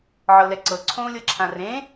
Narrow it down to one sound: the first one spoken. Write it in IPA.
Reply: ʕ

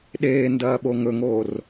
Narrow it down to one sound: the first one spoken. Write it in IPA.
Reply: ɗ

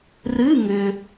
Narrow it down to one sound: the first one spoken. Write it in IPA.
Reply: r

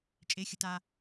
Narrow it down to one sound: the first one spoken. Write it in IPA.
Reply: t͡ʃʼ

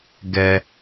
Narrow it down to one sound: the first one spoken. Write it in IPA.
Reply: ɡ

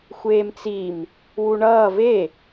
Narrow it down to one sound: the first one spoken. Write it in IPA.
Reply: xʷ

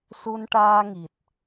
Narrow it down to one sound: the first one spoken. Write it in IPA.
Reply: s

